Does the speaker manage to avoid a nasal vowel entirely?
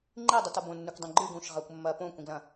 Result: no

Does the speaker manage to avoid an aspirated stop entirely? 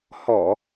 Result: yes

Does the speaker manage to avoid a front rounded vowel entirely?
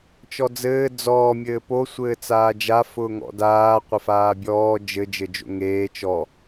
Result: yes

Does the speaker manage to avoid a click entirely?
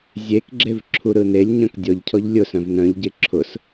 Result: no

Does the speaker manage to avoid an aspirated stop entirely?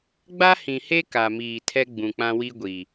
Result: no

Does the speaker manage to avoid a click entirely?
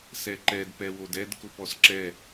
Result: no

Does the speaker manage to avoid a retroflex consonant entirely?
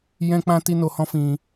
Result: yes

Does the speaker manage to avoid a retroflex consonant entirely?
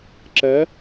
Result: yes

